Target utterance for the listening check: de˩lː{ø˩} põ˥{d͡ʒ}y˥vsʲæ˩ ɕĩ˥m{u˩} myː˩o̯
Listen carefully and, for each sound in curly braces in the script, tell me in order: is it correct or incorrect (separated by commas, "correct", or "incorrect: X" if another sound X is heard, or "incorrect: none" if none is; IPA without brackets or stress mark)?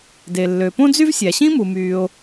correct, incorrect: d͡z, correct